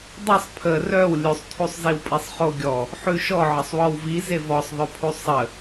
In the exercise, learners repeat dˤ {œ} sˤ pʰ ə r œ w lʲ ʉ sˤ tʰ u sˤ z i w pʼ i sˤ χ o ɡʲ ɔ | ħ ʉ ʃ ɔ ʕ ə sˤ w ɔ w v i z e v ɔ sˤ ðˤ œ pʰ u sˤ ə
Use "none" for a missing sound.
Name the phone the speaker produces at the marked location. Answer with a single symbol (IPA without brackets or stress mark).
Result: ə